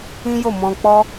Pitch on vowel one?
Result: high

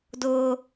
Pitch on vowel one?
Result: high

